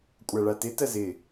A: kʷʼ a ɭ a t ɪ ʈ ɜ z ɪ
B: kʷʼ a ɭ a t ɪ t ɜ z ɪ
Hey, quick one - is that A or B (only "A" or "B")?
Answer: B